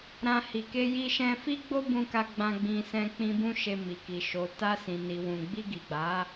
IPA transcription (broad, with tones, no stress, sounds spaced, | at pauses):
ɾ ã˧ h i˨ k e˧ j i˧ ʃ ɛ̃˧ f i˦ ɡ͡b o˦ b ũ˧ k a˧ ɡ͡b ã˧ ɡ͡b ĩ˧ s ɛ̃˧ k͡p ĩ˦ b ũ˦ ʃ e˧ m i˨ k i˨ ʃ o˨ t a˧ s ĩ˨ n i˨ w ũ˨ ɡ͡b i˧ ɡ i˨ ɡ͡b a˨˦